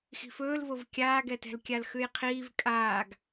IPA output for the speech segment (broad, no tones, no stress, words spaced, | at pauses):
xi̤fɵːlvov kʲaːɡɛtɛ̤l kʲalxʉjqʰiːv kʼaːɡ